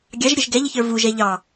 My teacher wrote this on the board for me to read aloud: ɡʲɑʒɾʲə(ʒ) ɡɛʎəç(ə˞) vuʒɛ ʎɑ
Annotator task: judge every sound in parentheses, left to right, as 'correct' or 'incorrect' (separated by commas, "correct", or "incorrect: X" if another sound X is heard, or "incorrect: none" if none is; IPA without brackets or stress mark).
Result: correct, correct